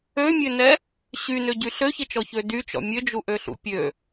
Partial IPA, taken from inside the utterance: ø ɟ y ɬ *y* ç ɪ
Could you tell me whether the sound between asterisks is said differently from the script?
yes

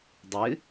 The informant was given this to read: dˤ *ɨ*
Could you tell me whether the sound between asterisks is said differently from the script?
no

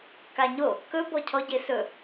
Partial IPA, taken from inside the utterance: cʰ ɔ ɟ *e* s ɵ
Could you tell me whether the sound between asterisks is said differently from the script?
no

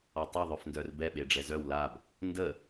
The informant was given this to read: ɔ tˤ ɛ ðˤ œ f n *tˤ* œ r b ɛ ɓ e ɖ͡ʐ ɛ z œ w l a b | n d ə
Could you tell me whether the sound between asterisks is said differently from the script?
yes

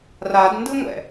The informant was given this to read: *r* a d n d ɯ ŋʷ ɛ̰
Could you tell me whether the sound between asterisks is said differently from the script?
no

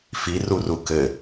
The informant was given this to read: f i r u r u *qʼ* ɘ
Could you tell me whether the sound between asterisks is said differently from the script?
yes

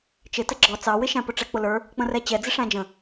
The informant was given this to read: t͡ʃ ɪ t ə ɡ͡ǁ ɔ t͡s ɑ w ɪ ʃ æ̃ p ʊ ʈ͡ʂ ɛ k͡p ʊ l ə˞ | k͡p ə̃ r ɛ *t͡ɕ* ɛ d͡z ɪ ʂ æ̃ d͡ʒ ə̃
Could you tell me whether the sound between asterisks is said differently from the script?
no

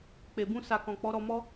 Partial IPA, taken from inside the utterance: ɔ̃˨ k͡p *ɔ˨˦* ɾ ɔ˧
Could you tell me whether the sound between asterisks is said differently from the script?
no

